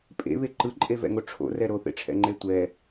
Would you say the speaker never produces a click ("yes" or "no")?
no